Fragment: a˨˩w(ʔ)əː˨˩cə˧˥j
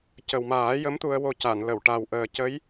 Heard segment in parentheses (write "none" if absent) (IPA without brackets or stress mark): ʔ